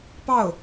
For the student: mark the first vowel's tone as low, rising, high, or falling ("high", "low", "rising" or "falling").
falling